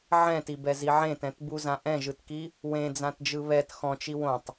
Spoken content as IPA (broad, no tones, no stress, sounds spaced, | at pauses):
ʕ ɛ̃ t i b ɛ z i ʕ ẽ t ɛ̃ t b u z ã ʔ ɛ̃ ʒ ɯ t k i | w ẽ d͡z ã t d͡ʒ ɯ β ɛ t x ɔ̃ t͡ʃ i w õ tˤ